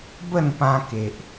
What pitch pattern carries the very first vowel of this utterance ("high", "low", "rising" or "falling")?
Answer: falling